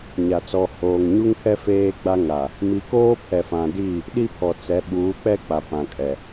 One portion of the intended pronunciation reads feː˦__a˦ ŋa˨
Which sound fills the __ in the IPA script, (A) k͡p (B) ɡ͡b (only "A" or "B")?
B